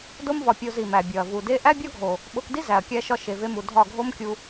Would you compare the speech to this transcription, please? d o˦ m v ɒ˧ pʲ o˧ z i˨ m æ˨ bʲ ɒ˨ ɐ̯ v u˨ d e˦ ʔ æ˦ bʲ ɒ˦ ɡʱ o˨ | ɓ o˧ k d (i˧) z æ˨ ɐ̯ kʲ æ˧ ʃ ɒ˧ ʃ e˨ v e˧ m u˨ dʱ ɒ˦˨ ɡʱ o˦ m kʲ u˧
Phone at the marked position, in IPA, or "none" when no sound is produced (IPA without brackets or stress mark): i˦